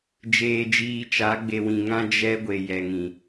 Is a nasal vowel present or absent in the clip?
present